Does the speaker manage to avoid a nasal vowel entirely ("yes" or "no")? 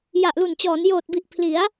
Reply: yes